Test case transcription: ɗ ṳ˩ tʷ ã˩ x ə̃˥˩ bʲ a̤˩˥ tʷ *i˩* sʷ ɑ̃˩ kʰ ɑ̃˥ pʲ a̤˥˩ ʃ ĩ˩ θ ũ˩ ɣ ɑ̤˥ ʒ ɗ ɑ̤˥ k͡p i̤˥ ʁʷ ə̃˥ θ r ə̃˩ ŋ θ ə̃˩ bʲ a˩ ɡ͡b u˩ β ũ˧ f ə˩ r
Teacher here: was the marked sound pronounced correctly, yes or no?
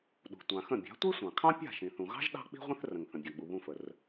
no